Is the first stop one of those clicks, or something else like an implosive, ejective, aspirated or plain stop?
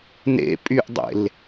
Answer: ejective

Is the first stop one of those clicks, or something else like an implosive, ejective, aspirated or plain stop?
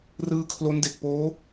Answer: aspirated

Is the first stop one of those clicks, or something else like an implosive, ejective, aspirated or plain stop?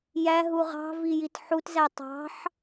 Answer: plain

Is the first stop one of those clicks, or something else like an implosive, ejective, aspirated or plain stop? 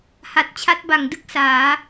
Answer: plain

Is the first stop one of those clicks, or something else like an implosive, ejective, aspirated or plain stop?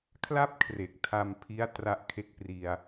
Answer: aspirated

